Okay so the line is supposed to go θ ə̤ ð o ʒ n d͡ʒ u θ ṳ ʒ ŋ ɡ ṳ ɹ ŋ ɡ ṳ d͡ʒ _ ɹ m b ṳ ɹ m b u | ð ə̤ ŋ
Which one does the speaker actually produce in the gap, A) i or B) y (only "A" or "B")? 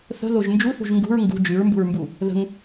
B